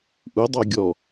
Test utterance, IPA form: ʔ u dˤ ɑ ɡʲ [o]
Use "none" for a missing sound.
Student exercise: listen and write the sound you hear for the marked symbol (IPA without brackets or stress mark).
ɔ